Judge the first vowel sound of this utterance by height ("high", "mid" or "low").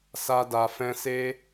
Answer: low